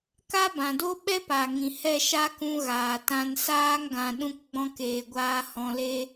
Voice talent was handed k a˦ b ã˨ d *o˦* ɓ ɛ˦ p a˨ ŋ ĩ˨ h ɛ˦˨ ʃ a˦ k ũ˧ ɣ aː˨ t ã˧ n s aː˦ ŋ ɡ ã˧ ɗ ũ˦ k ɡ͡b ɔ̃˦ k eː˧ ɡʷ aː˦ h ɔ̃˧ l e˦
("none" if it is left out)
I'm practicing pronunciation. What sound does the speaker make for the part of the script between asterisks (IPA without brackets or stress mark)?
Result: o˦